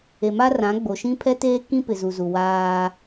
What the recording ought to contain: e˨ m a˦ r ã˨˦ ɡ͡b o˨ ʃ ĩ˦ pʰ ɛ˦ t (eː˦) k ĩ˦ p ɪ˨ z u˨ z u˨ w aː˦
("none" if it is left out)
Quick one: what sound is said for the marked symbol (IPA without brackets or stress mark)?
eː˦